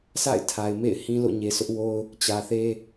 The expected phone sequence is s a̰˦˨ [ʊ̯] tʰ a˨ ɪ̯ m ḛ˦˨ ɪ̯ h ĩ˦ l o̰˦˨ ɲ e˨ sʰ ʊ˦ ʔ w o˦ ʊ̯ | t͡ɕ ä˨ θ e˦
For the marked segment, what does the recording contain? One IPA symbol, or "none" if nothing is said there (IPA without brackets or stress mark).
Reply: ɪ̯